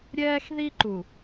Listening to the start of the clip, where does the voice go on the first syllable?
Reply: high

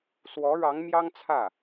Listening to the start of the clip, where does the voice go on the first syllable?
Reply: rising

